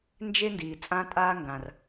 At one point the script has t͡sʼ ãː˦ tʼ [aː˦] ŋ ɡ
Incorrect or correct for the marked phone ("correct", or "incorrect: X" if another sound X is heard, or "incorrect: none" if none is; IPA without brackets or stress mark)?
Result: correct